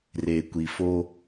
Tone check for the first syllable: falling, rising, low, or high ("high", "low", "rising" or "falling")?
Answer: low